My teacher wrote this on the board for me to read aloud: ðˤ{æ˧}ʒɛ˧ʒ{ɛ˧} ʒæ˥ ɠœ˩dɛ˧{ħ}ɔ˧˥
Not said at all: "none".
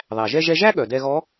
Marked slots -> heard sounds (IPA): æ˩, ɛ˧, ɣ

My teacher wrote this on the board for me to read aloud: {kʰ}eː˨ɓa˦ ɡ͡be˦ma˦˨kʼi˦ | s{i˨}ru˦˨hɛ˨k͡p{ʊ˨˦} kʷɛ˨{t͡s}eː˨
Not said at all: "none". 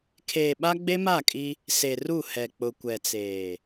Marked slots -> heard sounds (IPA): kʰ, e˨, ʊ˨, t͡s

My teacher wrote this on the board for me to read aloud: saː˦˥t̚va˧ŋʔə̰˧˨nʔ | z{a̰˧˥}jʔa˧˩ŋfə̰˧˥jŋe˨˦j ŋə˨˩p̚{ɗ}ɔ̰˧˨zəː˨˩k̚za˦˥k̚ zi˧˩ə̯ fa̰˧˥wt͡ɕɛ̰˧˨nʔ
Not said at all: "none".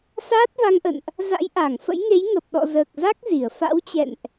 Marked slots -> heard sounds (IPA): a̰˧˥, ɗ

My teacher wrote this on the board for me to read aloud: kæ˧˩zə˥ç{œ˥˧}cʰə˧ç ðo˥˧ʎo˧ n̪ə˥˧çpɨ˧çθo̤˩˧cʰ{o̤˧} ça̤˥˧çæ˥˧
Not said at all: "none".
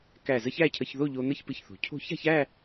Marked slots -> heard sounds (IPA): æ˥˧, o̤˥˧

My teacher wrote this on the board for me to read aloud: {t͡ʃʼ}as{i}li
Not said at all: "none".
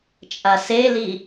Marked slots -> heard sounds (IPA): t͡ʃʼ, e

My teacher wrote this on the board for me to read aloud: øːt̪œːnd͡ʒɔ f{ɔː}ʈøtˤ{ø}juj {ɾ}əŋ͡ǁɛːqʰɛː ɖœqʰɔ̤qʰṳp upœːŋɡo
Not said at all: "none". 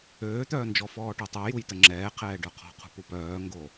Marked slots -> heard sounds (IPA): ɔː, œ, t

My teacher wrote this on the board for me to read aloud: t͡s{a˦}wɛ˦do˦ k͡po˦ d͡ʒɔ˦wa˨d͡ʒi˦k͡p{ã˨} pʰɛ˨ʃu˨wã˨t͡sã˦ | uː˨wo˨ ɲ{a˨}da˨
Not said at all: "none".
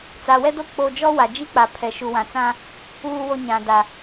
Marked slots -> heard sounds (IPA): a˨, a˨, ã˨

